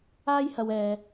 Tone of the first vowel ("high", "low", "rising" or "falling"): high